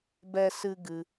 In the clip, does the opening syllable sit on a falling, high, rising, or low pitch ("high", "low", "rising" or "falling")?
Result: high